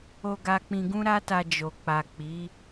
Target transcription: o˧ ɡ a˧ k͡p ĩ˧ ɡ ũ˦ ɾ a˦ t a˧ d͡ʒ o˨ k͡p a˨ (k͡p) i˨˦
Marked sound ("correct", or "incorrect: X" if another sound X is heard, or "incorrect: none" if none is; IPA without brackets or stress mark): correct